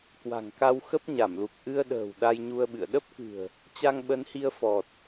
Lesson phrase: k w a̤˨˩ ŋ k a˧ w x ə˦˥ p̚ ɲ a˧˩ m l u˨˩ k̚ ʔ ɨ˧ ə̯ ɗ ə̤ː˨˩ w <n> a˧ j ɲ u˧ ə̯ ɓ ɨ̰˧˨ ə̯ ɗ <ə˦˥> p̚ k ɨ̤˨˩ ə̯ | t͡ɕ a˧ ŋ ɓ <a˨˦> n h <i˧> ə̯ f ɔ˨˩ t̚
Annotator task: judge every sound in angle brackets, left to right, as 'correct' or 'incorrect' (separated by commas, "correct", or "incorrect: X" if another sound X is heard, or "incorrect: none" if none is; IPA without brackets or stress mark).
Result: incorrect: ɗ, correct, incorrect: ə˨˦, correct